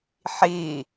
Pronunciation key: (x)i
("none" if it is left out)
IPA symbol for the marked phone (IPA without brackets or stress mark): ħ